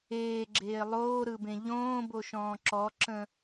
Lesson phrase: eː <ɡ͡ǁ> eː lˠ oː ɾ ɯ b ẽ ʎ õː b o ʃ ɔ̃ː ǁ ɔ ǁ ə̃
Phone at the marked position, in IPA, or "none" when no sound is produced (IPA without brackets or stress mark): ɡ͡ǁ